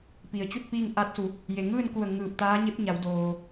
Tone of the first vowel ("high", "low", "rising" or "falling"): low